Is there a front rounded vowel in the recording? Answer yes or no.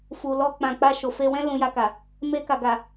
no